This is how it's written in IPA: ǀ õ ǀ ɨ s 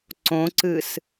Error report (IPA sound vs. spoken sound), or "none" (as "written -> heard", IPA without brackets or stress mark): none